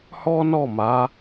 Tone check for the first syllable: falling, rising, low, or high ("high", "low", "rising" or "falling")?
high